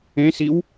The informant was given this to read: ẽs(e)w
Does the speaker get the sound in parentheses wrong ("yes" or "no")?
yes